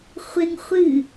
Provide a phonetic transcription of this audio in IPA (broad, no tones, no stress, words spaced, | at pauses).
χʷɪŋ χʷɨ